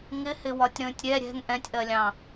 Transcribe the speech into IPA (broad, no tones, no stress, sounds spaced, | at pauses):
ŋ ɪ h ɪ w ɒ tʲ ɾ ə̃ː tʲ ɾʲ ɛ ɾʲ ɛ̤ ŋ ʔ ɛ̃ tʲ ʔ ɜ lʲ ɑ̃